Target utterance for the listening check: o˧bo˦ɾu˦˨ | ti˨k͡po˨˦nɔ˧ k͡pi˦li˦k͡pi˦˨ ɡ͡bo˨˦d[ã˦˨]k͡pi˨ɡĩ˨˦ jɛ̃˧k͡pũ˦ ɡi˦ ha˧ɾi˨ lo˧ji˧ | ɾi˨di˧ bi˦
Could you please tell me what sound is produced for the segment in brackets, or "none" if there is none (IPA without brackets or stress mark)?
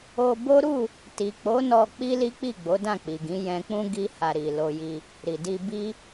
ã˦˨